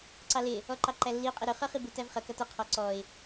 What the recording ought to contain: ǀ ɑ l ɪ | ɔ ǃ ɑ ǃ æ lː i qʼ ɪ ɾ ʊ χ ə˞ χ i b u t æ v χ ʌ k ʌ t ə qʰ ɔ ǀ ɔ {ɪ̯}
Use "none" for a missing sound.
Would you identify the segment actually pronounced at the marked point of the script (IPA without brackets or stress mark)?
ɪ̯